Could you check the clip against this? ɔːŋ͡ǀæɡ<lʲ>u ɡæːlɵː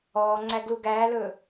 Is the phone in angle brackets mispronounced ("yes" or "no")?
yes